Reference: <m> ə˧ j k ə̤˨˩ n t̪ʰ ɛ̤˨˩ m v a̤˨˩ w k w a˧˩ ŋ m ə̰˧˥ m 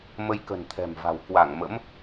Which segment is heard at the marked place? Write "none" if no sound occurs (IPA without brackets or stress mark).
m